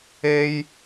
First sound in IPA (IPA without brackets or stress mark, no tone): e